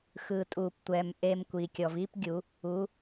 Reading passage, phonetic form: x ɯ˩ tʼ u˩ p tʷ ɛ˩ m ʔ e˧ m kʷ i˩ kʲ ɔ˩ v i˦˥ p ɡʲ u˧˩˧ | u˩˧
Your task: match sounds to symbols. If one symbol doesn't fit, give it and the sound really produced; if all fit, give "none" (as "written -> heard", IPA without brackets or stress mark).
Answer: none